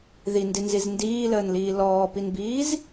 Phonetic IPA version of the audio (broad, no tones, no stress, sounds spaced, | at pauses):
ð i n d i n z i z n d iː l əː n l iː l ɔː p i n b iː z